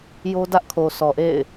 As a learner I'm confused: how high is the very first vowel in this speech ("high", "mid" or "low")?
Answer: mid